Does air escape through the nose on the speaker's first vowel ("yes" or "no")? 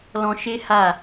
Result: yes